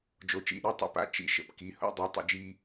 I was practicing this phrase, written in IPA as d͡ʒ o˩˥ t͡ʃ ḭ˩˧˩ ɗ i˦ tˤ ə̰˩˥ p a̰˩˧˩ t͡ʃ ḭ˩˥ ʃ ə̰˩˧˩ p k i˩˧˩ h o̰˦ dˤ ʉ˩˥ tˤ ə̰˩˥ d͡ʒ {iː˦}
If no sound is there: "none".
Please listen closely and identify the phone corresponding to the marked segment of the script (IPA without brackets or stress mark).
iː˦